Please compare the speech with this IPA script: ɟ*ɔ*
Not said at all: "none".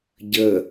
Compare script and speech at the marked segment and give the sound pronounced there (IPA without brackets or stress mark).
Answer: ə